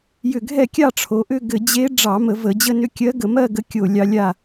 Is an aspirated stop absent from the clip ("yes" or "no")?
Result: no